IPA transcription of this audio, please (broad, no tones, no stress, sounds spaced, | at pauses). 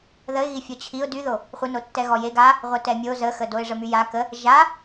ð ə ɪ̯ ɣ i fʲ ɔ t͡ɕʰ i ʊ̯ d y ð o | χʷ ə n o tː ɛ ɣ ɔ j e ɡ a | ʁʷ ɛ t ɛ mʲ o z ə x ə d o ɪ̯ ʐ ə m y j a k ə | ʒ a